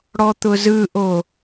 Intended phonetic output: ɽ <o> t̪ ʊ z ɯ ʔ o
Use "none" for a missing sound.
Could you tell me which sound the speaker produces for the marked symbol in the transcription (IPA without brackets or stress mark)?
ɔ